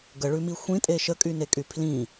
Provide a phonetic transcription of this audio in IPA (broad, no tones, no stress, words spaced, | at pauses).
ɡəɭʉmi xʷĩtʼe ʃəkʼynekʼy pʰlĩ